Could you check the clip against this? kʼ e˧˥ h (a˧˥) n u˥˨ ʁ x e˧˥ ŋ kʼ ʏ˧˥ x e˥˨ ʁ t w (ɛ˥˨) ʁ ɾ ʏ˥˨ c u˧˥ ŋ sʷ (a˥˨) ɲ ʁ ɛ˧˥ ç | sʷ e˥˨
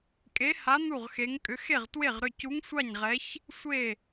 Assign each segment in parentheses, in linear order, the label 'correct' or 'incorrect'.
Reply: correct, incorrect: e˥˨, correct

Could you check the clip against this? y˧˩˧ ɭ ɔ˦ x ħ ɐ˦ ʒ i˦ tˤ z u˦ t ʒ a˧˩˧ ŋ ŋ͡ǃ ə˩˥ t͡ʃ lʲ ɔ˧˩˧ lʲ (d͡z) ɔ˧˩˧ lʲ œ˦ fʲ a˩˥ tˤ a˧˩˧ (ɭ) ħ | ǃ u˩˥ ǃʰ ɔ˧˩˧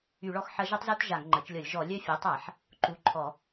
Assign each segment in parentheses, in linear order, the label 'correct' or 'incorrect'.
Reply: incorrect: ʒ, incorrect: none

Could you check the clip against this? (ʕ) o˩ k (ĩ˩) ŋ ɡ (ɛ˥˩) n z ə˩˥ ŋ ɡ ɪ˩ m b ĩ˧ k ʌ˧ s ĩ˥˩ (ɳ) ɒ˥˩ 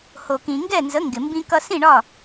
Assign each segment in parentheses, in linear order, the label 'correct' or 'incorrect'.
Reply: incorrect: h, correct, correct, correct

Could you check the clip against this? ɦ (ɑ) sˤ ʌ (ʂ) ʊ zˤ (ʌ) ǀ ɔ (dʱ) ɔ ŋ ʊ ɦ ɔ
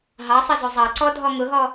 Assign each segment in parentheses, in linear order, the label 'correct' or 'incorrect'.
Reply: correct, incorrect: z, incorrect: ɑ, correct

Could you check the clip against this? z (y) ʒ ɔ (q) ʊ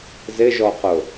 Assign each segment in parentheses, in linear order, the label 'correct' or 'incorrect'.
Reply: incorrect: ɪ, correct

